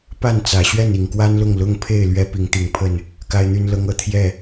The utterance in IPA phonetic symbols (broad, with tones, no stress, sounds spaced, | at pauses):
p a˥˨ n t͡s ä˨˩ ɕ ɥ ɛ˥˨ n i˨˩ ŋ k w a˦ n l ʊ˥˨ ŋ l ʊ˦ ŋ pʰ e˥˨ ɪ̯ l ɥ ɛ˦ p i˨˦ ŋ t̪ i˨˩ ŋ pʰ ə˥˨ n | k a˦ ɪ̯ n̪ y˦ n l ɤ˦ ŋ ɤ˨˦ t̪ʰ j ɛ˥˨